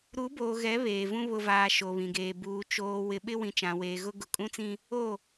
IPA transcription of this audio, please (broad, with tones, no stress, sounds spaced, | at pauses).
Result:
ɾ u˨˦ b oː˨ ɣ ɛ˨˦ β eː˨ v ũ˦ β ʊ˨ v aː˨ ʃ o˨ β ĩ˨ ɡ eː˨ b uː˨ t͡ʃ oː˨ w ɪ˨ ɓ ɪ˦ w ĩ˨ t͡ʃ ã˨ w eː˨ ɣ ʊ˦ ɡ ʊ˨ kʼ ũ˦ t͡s ĩ˦ | o˦˨